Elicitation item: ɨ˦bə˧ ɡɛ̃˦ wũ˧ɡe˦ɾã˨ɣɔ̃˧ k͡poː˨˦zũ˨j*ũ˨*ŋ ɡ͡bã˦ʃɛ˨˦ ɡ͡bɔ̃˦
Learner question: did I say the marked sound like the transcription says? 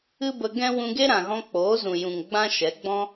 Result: yes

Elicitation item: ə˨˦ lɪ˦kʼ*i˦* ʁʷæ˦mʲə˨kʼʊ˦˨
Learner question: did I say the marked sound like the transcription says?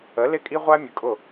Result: yes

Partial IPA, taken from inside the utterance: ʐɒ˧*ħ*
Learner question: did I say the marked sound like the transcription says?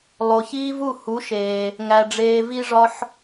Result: yes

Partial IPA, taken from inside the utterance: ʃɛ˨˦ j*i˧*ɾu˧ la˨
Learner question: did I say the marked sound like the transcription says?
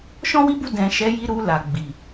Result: yes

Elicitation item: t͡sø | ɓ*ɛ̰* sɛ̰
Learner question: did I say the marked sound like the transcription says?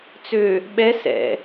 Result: no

